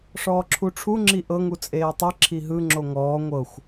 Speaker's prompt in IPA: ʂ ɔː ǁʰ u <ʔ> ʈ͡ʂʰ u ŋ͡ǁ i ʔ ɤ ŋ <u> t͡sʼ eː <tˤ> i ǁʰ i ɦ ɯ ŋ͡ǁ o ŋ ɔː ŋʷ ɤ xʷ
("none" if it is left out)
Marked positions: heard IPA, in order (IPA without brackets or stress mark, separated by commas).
none, u, tˤ